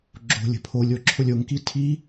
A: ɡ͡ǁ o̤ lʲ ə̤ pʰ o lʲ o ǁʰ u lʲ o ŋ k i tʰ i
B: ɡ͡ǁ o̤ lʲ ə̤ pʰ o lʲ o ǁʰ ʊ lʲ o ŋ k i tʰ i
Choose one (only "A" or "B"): B